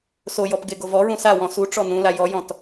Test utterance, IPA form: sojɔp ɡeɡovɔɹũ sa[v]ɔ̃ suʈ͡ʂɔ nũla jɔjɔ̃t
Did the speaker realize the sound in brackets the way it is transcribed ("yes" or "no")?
no